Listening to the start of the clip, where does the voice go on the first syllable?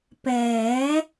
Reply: rising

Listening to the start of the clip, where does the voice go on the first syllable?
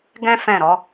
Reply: high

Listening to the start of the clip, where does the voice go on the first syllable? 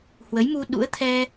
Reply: rising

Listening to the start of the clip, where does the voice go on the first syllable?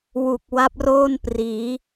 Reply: low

